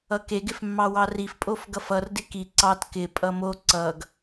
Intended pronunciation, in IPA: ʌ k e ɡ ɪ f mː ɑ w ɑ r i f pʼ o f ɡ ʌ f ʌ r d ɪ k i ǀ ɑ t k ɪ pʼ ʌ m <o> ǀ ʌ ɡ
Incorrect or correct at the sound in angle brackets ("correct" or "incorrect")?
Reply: correct